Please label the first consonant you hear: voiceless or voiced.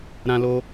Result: voiced